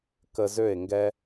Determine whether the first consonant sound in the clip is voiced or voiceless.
voiceless